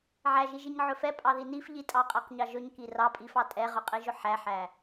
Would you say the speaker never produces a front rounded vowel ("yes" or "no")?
yes